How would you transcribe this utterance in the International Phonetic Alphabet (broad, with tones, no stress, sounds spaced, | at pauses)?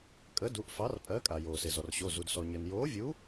kʼ əː˨˥ d u˩˧˩ ʔ f ɑ˨˥ r pʼ ɜ˨˥ kʼ a˩ j oː˩ s e˩ z ɔ˩ r ɕ o˩˧˩ z u˩ d s ɔ˩ ɲ əː˩ n j oː˨˥ vʲ u˨˥